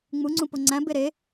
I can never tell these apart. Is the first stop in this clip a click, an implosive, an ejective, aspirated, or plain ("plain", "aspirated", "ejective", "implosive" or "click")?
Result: click